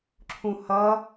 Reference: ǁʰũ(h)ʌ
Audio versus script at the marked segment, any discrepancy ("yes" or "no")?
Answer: no